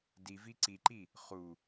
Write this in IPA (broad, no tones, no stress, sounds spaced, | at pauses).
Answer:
d i v i ǀ i ǃ i | χ u